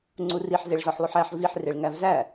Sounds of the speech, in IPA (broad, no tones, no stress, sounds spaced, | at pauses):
ŋ͡ǀ u r i ħ z e ɭ z ɒ ħ lˠ u ħ æ ħ v i ħ r e ɭ ŋ æ v z æ